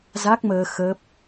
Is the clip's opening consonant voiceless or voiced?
voiced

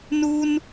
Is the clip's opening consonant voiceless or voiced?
voiced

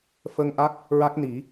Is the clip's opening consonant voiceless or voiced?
voiceless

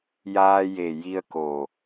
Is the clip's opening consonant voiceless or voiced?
voiced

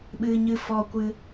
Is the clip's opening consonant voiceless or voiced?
voiced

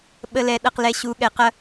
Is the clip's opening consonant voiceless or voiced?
voiced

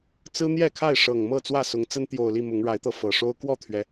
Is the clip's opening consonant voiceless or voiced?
voiceless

